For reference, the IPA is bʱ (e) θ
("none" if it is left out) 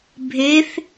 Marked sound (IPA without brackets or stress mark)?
e